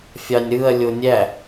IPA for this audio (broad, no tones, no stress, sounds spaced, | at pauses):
fʲ ɑ nʲ ɾ ɯ ɐ̯ lʲ o nʲ æ